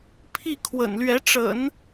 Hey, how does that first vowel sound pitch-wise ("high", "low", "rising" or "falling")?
falling